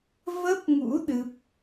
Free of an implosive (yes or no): no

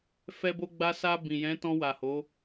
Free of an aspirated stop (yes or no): yes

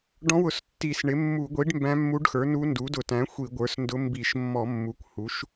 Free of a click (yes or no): yes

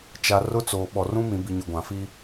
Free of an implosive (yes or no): no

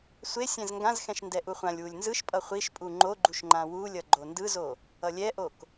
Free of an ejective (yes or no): no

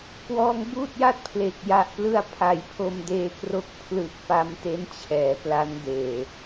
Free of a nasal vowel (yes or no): yes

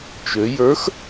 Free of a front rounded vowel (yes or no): no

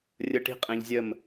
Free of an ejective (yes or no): no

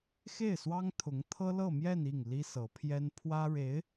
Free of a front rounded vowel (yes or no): yes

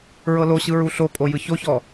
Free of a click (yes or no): yes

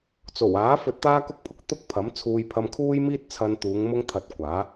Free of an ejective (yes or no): yes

